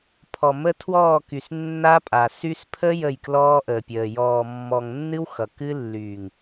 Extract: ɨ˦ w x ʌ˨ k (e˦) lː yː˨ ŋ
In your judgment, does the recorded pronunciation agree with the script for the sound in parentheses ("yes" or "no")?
no